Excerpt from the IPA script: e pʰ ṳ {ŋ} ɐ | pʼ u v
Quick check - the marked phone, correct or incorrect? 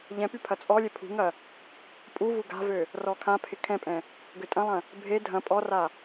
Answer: correct